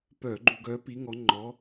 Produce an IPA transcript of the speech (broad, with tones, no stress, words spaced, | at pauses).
pœː˧˩˧ɡ͡ǃu˧˩˧ ɡœː˨˦pi˨˦ ŋɔ˨˦ ŋ͡ǃɔː˨˦